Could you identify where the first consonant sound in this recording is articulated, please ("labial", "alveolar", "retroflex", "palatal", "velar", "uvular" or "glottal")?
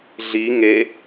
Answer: alveolar